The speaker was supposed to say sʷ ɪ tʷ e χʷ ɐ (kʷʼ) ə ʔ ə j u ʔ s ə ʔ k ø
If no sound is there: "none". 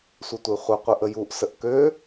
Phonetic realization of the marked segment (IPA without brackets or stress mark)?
qʷ